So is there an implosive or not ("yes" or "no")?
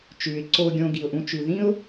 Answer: no